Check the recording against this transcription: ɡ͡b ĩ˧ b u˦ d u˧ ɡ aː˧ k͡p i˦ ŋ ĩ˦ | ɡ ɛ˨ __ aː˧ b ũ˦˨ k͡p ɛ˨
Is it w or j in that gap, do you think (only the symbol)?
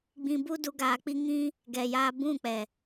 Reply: j